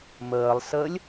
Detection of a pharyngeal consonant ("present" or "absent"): absent